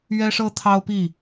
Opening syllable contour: high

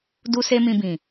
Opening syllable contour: high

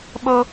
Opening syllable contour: high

